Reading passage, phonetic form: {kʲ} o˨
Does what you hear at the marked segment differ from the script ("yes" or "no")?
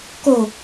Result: yes